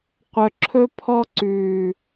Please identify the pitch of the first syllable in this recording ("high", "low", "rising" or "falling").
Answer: low